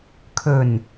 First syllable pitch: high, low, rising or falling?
low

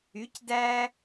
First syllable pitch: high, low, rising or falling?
rising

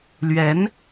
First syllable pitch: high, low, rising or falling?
rising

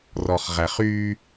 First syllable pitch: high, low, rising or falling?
low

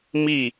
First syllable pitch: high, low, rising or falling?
falling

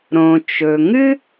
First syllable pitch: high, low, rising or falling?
low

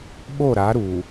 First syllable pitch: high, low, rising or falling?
falling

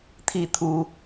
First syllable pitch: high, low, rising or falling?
falling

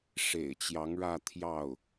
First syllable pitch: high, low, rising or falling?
low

